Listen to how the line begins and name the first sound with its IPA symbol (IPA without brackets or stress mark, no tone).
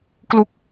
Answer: k